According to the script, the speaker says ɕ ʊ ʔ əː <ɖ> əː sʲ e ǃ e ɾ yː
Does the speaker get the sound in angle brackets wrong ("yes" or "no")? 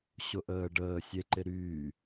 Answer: no